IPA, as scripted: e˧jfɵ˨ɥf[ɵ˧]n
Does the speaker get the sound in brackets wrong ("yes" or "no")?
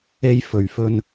no